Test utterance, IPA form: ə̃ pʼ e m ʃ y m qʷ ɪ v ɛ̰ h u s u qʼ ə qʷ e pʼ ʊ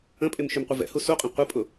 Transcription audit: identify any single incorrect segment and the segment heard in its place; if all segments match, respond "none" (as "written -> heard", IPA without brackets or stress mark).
ə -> ə̃